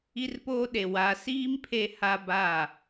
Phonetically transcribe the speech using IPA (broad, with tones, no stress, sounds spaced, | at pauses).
i˦ r p oː˦ ɗ e˨ w a˨ s iː˦ m pʰ e˦ h a˦ b a˦˨